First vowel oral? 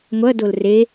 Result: yes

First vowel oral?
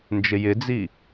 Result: yes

